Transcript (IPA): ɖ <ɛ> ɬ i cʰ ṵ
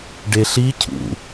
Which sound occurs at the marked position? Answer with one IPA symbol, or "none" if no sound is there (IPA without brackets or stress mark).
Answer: e